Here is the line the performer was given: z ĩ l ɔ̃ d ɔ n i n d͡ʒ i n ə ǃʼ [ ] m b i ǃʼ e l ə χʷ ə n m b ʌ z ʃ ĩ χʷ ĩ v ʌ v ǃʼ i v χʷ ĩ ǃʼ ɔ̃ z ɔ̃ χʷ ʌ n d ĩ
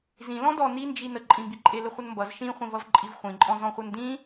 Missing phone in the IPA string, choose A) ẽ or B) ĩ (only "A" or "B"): B